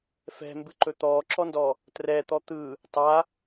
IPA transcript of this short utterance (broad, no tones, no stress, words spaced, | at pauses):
fɛ̤mbɨǃɵ t̪ɔːǁɔndɔ | trɛːt̪ɔ t̪ɯ | tˤa